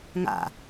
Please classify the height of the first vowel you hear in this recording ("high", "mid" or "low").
low